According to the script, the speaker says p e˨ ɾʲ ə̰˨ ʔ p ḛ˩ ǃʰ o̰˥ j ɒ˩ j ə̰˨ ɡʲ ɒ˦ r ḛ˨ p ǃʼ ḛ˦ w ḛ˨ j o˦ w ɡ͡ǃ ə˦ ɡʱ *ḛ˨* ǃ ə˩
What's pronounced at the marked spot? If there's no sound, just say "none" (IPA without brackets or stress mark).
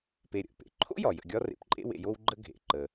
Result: ḛ˩